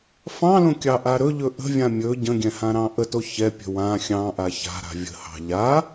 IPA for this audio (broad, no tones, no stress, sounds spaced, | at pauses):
f ɑ̃ l õ kʲ ɑ ʔ a ɾ ɵ ʎ ɵ ʔ ə̤ vʲ ã mʲ ɵ ɟ ə̃ ɡʲ ɛ̃ h ã ɾ ɑ̃ ʔ ə t o ç ɛ pʲ ə̤ w ã xʲ ɑ̃ ʔ a ç a̤ ɾ a̤ vʲ ə̤ h ɑ̤ ʎ a